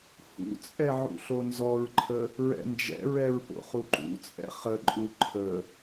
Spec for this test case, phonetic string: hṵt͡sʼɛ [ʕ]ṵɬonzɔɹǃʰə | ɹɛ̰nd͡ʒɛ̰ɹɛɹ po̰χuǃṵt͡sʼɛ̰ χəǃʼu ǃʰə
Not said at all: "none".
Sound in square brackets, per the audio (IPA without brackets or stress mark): ʕ